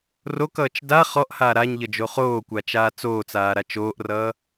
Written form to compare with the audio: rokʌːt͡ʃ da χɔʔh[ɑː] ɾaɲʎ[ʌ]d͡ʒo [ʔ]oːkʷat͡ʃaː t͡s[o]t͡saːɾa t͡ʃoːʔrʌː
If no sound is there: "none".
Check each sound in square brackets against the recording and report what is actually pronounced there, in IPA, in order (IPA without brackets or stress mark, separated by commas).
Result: aː, ʌ, χ, oː